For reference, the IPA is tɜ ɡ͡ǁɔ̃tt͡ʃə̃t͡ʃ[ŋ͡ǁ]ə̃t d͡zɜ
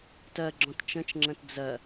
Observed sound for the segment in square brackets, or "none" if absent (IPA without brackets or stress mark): ŋ͡ǁ